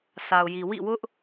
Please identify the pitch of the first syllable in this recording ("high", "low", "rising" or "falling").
low